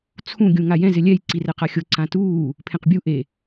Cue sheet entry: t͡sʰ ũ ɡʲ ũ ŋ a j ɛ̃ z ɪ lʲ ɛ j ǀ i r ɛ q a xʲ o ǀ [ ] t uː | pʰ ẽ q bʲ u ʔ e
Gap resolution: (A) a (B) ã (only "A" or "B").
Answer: B